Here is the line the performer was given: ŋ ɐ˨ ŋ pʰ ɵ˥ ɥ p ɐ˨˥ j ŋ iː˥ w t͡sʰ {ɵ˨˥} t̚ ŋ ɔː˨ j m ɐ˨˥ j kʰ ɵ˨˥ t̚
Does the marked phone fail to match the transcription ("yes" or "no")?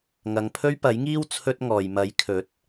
yes